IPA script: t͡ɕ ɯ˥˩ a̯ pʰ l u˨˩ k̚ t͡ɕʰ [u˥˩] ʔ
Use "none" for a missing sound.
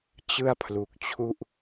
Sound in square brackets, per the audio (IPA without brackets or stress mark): u˥˩